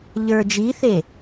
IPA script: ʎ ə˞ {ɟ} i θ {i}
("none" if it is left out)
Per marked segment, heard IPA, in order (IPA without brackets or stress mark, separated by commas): d͡ʒ, e